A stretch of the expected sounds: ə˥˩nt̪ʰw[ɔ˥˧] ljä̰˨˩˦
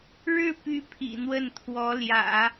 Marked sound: incorrect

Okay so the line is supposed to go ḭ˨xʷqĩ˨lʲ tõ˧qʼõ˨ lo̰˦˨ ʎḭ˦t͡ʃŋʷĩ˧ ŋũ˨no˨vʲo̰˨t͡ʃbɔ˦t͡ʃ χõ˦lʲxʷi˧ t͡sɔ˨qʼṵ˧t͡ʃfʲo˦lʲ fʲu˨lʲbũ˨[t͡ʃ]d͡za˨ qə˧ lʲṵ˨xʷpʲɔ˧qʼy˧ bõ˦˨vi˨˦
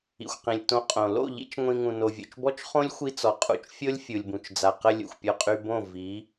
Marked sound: correct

